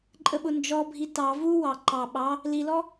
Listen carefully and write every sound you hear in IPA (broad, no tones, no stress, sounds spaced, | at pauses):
ǃʼ ə ɓ ʊ n d͡ʒ ɔ bʱ i t ɑ v u w ɑ ǃ ɑ ɓ ɑ | l i l ɔ